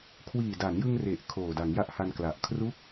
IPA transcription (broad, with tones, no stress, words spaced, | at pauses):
kʰwiː˨˩da˩˦njɯ˧ŋ re˨˩ʔ kʰoː˨˩da˩˦ŋja˦˥ʔha˧n kla˨˩ʔkʰru˥˩k̚